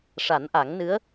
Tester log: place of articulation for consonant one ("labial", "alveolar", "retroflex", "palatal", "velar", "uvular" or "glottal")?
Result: retroflex